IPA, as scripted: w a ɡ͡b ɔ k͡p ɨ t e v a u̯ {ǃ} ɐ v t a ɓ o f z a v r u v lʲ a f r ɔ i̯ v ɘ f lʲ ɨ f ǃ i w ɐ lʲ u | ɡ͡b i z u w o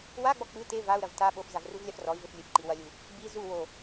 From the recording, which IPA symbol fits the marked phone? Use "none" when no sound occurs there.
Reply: ɾ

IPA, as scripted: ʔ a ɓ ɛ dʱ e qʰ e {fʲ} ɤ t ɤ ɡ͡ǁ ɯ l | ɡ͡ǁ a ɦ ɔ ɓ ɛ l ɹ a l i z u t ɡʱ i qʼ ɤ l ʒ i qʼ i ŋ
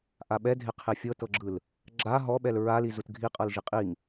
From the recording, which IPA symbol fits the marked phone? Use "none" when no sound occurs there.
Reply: fʲ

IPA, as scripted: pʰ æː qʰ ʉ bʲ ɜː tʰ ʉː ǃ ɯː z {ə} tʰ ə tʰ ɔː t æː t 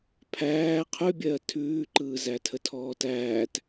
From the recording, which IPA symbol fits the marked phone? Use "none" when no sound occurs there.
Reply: æ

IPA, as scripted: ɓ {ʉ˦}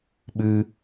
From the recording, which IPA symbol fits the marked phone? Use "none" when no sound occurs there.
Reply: ʉ˦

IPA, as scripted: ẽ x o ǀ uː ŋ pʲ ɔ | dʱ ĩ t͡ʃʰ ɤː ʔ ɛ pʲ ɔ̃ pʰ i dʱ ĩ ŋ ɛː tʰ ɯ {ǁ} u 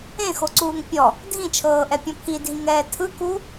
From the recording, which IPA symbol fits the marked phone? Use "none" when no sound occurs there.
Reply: k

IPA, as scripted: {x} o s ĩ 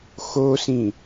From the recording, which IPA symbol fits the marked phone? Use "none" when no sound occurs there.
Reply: x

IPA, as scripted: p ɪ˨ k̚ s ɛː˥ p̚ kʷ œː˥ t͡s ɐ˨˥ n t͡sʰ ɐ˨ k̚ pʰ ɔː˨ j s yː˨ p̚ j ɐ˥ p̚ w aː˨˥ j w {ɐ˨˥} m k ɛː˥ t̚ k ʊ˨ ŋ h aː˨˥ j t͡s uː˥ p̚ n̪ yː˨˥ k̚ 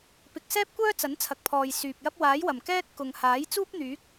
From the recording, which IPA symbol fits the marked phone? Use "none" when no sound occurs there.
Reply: ɐ˨˩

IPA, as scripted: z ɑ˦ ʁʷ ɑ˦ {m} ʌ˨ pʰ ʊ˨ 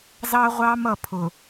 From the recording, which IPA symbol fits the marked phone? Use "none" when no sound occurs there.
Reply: m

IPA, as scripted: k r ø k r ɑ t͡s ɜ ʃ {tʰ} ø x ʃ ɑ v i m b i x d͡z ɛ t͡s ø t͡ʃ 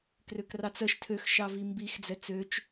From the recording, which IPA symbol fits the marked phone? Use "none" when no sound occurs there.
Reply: tʰ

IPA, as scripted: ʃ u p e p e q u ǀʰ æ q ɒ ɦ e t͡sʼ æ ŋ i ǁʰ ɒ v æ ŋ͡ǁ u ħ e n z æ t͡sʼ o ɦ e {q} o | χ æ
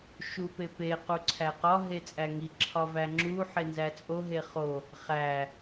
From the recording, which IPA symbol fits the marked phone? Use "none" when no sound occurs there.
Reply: χ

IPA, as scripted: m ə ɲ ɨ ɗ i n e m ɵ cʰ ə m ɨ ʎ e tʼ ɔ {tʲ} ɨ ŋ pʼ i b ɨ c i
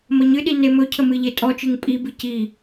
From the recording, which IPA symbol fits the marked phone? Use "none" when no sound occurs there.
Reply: t͡ʃ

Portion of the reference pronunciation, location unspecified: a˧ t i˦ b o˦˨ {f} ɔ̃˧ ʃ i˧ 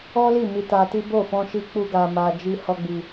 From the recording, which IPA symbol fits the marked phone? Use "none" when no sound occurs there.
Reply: f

